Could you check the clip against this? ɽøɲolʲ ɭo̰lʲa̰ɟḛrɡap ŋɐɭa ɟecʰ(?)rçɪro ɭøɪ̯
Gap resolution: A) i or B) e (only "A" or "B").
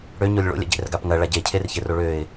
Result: B